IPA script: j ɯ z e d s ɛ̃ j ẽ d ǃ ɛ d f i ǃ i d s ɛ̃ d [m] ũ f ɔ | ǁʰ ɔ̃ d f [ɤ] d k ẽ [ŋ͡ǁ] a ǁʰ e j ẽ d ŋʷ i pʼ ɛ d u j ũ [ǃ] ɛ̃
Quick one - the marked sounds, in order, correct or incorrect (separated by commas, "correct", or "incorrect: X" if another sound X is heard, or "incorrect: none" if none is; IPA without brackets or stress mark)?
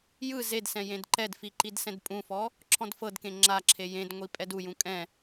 incorrect: pʼ, correct, correct, incorrect: kʼ